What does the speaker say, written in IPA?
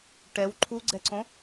ʈ ɛ w ǃʰ u ɡ͡ǀ ɛ ǀ õ

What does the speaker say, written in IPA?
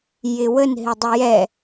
j ɪ w ə n ɦ ɪ dˤ ə j ɛ

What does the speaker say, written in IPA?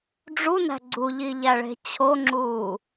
ɖ͡ʐ u n æ̤ ɡ͡ǀ u ʎ i ʎ æ ɭ e̤ t͡ɕʰ o ŋ͡ǁ uː

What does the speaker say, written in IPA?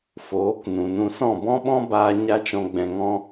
f oː˨˦ k n ũ˨ n ũ˧ s ɔ̃˦˨ b ɔ̃˦ ɓ ɔ̃˦ b aː˧ ɲ a˦ t͡ʃ ɔ̃˧ ɡ͡b ɛ̃˨ ŋ ɔ̃˧

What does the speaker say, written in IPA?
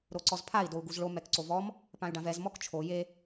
ɾ o ǀ ɔ z pʰ a i̯ d o u̯ ɡ u z ɭ o m ɛ k ǀ o v ɔ m | p ã y̯ ɖ ã v ɛ z m ɔ k t͡ʃʰ o j e

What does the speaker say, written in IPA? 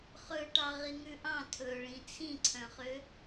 χ ɵ ʈ ɑ ʁ i ŋ ʉ ʔ ɑ̃ tʰ ɵ ɭ ĩ t͡sʰ ĩ ǀʰ œ̃ χ ø

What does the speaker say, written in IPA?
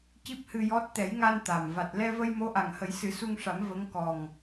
c i˦˥ p̚ h ɨ˧ j ɔ˦˥ t̚ t̪ ɛ˨˩˦ j ŋ a˧ n t̪ a˨˩ m v a˨˩ t̚ l ɛ˧ v ə˧ j m o˧˥ ʔ a˨˩ ŋ h ə˨˩˦ j s ɨ˨˩˦ s u˧ ŋ ʂ a˨˩˦ m v ə˧˥ ŋ k ɔ˨˩ ŋ

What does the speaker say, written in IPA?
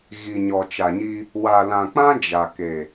ɣ i˨ ɲ ɔ˨ t͡ʃ a˨ ɲ i˦ | w a˨ l ã˨ k͡p ã˦ d͡ʒ a˨ k e˨

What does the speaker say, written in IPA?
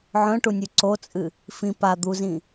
ʕ œ̃ ʈ u nʲ ʉ ǀ o t͡sʼ ɨ | f ĩ p a d̪ u z ĩ

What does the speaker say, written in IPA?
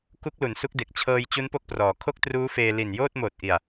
k u˦˥ k̚ l u˩˦ n s u˦˥ k̚ d e˨˩ k̚ t͡ɕʰ ɤː˧ j t͡ɕ u˦˥ n p o˥˩ k̚ p r ɔː˩˦ kʰ o˥˩ k̚ t r uː˦˥ f eː˧ l i˨˩ n j oː˥˩ t̚ m oː˨˩ t̚ ʔ i˨˩ a̯

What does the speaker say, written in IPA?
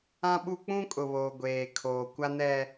ã˦ ɓ u˦ k͡p ũ˦ kʼ ʊ˨ β oː˨ ɡʷ eː˨ kʰ oː˨ kʷ a˦ n ɛ˦

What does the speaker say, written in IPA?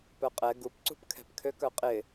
p œ qʼ ɛ ɡ u p ǀ ṳ p kʰ ɛ̤ p kʰ ø k œ qʼ ɪ

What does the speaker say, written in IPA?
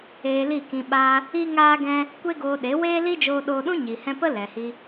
eː˧ l i˦˨ k ĩ˧ ɓ aː˧ | i˦ ŋ aː˦ ɡ ɛ̃˦ | kʷ e˦ ɡ oː˧ ɗ e˨˦ w eː˦ l i˦ d͡ʒ oː˧ ɗ oː˧ ɗ ũ˦ ɲ i˨ h ɛ̃˧ p ə˦ l ɛ˨ h i˧

